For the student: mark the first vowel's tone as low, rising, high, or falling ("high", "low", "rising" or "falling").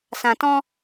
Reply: low